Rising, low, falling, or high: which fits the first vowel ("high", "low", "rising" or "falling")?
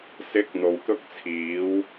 rising